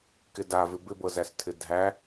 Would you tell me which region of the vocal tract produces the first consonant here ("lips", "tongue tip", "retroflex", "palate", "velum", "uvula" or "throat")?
velum